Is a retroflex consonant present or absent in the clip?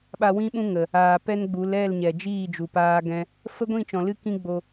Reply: absent